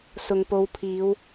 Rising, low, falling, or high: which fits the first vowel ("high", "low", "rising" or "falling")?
low